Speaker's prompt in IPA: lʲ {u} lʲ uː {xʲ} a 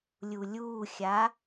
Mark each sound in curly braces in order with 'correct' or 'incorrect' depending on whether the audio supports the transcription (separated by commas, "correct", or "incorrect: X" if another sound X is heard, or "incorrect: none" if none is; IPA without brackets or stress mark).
correct, correct